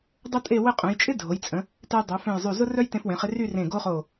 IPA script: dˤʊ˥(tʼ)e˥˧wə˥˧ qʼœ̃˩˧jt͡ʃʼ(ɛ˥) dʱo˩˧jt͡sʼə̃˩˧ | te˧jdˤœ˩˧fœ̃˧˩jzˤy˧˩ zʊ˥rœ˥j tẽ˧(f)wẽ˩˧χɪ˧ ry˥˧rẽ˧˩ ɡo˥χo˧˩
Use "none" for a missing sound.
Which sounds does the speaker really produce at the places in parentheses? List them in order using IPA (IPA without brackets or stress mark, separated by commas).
tʼ, ɪ˥, f